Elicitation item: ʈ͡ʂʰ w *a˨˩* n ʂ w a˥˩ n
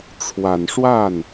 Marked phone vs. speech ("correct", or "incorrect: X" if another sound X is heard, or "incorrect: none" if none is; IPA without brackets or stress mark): correct